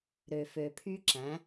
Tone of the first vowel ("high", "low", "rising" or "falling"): low